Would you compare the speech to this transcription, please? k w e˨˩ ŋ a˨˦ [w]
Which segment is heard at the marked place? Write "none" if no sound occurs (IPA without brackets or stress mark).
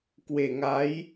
j